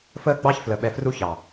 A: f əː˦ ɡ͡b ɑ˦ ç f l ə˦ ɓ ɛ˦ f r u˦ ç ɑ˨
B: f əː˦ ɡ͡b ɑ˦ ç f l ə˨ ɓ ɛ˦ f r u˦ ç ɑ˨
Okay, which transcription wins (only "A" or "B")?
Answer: A